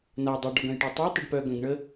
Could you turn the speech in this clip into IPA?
n a dˤ œ ɖ ɔ ɡ œ̃ j ʈ a tˤ œ tˤ ʏ ɖ p œ ɡ œ̃ ɡ ɳ ə

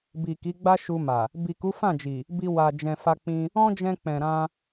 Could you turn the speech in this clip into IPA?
b i˨ k i˨˦ ɡ͡b a˦ ʃ u˧ m a˨ | b i˨ k u˨˦ f ã˦˨ d͡ʒ i˨ | b i˧ w a˨ d͡ʒ ɛ̃˨ f a˧ k͡p ĩ˧ | ɔ̃˦ d͡ʒ ɛ̃˧ k͡p ɛ̃˨ ɾ ã˧

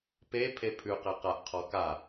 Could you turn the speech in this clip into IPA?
p e pʰ e pʰ ʉ q e q a ʔ qʰ ɔ k a

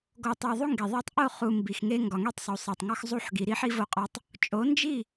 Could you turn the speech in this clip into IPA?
ɡ o˨ tˤ æ˨ ðˤ u˦ ŋ ɡ e˨ ðˤ æ˦ tˤ ʔ o˦˨ χ u˨ m b i˨ x ŋ e˦ ŋ ɡ ɒ˨ ŋ e˦ tˤ sˤ u˨ sˤ æ˨ tˤ ŋ ɒ˦ x zˤ u˦˨ ħ ɡ i˨ ɾ i˦ ħ i˦ v o˦ qʼ ɒ˦ tˤ | t͡ʃʼ o˨˦ n d͡ʒ i˦˨

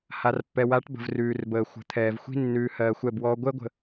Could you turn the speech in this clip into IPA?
h a˨ r pː ɛ˨ w a˨˦ ʈ b ə̤˨ v r ʉː˨ r b əː˨ xʷ ə̤˨ t̪ʰ ɛː˨ v xʷ i̤˦ nː ʉː˨ h ɜː˨ xʷ ɛ˦˨ b w ɔː˦ ɡʷ ɛ˦ ɡʷ ə̤˨

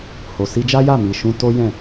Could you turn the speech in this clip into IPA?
h o˨ s i˧ d͡ʒ a˦ j a˦˨ m i˨ ʃ ũ˧ t o˦ j ɛ̃˦˨

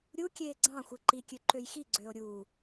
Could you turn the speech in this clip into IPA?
ɾʲ u kʲ eː ɡ͡ǀ ɑ̃ xʷ ɯ ǃ i kʲ ø ǃ ø j x i ɡ͡ǀ øː o̯ ɾʲ uː

